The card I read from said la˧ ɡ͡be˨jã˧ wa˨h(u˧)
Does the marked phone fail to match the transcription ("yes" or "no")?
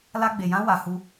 no